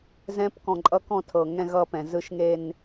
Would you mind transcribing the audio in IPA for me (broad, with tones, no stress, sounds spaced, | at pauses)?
z ɛ̃˦˥ p k ɔ̃˧˩ ǃʼ ʌ˦˥ k ɔ̃˥˧ tʰ ɤ˧˩ ŋ ɛ̃˥˧ ɣ ʌː˥˧ p ɛ̃˧˩ z ɯ˦˥ ʃ ŋ e˥˧ n